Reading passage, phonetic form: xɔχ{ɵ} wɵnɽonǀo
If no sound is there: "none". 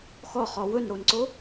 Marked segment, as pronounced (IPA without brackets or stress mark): ɔ